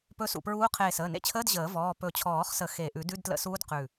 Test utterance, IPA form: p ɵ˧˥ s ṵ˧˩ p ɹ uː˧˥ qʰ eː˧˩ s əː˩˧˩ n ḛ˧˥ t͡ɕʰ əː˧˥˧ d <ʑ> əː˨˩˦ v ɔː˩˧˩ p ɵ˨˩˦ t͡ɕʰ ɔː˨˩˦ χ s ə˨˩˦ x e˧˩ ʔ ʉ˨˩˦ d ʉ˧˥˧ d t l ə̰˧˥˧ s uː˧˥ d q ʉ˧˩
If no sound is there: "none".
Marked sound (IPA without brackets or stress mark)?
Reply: ʑ